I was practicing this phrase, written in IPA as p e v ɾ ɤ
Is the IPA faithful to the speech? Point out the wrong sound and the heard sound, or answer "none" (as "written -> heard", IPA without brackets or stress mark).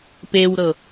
v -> w